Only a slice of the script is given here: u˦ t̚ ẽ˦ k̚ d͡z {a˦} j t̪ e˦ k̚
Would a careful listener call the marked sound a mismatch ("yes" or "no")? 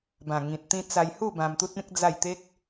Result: yes